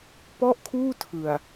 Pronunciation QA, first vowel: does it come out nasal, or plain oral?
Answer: oral